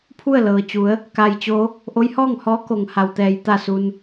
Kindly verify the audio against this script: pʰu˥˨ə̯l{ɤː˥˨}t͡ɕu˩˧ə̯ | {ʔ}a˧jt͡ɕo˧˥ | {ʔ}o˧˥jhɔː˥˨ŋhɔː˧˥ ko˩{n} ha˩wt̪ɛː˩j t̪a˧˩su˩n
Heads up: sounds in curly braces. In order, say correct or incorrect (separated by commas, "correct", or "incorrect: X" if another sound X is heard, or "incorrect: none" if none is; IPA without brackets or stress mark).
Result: incorrect: ɤː˩, incorrect: k, correct, incorrect: ŋ